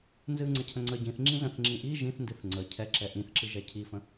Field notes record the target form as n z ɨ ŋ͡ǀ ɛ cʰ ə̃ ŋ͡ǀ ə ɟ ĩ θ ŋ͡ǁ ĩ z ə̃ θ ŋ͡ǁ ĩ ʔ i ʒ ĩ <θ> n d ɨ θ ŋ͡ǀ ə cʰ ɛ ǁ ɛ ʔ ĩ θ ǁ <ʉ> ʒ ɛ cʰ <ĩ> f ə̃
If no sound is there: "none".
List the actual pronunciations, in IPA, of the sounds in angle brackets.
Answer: θ, ɨ, i

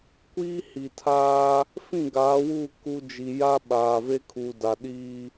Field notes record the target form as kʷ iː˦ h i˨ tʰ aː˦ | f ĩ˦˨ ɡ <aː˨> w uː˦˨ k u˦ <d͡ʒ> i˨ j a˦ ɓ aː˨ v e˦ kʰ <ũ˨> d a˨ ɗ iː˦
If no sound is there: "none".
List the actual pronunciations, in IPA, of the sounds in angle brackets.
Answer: aː˨˦, d͡ʒ, u˨

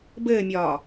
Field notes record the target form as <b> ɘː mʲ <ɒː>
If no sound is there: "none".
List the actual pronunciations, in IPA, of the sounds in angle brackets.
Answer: b, ɒː

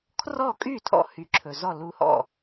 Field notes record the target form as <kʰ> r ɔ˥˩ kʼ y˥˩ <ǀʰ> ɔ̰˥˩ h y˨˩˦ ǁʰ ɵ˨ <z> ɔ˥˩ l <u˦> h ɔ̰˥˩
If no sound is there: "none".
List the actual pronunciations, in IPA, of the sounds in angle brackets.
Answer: kʰ, tʰ, z, u˦

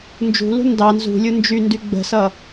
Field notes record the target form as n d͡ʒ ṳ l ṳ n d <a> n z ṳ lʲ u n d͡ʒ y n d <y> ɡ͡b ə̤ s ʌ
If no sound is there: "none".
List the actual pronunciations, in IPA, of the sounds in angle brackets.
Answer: ɑ, y

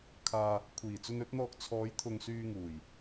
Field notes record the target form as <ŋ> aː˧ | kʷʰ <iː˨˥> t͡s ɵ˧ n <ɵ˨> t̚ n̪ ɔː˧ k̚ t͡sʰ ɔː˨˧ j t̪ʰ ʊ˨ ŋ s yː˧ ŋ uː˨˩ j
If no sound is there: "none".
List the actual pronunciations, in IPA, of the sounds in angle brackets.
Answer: kʰ, iː˨˩, ɵ˨˥

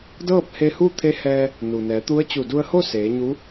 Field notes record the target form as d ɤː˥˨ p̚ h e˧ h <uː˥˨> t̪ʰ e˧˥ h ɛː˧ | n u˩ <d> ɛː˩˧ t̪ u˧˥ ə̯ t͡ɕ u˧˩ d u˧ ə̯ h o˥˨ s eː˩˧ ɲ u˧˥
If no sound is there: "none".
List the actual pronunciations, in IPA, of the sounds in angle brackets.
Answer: u˥˨, n

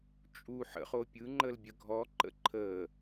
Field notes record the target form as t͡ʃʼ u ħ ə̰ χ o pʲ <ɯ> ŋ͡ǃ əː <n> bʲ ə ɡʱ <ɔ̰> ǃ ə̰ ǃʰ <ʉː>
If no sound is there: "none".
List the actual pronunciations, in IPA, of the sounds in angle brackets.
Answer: ɯ, l, ɔ, əː

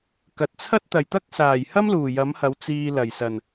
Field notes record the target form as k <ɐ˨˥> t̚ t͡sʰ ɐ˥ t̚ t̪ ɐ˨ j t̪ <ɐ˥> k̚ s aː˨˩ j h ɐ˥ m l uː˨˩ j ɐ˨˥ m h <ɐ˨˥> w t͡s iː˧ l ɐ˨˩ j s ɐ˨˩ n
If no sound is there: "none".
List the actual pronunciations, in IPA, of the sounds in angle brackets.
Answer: ɐ˨, ɐ˥, ɐ˨˥

